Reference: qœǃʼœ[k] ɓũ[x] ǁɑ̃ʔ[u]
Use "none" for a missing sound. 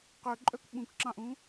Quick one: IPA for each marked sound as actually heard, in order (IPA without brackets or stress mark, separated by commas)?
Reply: k, k, ũ